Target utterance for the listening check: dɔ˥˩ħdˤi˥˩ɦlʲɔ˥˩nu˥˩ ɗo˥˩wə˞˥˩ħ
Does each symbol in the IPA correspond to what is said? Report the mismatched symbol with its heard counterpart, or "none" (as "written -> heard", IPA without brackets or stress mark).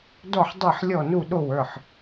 ɦ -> ħ